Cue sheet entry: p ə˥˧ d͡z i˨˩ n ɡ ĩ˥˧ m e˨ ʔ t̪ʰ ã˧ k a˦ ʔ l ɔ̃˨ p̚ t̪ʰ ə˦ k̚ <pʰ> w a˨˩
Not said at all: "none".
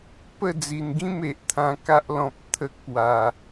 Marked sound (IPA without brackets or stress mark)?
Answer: p